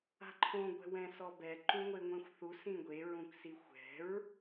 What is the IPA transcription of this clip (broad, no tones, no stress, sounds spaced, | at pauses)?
a̤ ǃʰ õ ɡʷ ɛ̤ w ɛ̃ s ɔ b ɛ ǃ ũ ŋʷ e ŋʷ ẽ xʷ θ u s ĩ ɡʷ e ɹ ũ k s i xʷ ɛ̤ ɹ